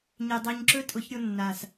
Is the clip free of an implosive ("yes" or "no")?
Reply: yes